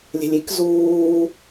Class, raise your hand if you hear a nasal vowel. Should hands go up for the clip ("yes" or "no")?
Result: no